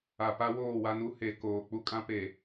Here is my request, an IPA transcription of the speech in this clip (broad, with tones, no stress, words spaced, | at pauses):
a˨pa˦woː˦˨wa˦n u˦he˨ koː˨k͡pu˦ kʼã˦pe˨